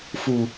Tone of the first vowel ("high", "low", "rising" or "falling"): low